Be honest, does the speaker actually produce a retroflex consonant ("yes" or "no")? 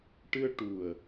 yes